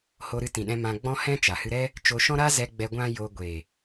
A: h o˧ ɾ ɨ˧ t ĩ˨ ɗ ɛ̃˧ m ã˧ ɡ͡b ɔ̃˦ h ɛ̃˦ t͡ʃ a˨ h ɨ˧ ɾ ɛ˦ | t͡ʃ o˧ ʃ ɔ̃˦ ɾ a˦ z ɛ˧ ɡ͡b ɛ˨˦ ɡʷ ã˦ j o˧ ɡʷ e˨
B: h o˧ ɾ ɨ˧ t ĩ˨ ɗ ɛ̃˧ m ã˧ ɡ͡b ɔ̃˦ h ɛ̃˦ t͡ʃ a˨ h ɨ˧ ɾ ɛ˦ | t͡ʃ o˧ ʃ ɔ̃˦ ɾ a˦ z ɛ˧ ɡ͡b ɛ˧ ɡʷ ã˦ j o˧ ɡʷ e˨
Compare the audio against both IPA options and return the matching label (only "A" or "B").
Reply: B